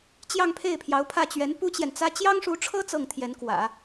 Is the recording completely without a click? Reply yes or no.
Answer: yes